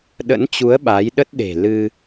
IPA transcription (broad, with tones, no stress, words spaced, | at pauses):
ɗə̰˧˥nt͡ɕu˨˦ə̯ ɓa˨˦jɗə˦˥t̚ɗe̤˨˩ lɨ˧